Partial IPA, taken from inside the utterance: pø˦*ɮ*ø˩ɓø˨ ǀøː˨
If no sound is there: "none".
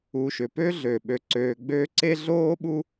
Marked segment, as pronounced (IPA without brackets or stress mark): ɮ